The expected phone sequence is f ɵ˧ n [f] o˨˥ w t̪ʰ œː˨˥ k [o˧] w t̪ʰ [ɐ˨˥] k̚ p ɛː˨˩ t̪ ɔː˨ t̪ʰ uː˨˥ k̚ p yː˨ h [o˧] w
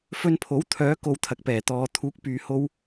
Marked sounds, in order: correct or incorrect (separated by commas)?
incorrect, correct, incorrect, correct